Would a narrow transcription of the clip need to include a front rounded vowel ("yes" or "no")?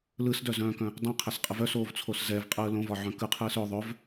yes